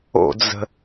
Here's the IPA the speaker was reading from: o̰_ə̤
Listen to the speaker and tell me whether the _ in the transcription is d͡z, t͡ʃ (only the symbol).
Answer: d͡z